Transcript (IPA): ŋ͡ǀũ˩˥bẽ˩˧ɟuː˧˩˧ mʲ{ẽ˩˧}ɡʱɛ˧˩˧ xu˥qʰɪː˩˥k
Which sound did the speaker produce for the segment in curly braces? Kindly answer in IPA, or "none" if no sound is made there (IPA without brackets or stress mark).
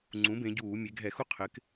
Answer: e˩˧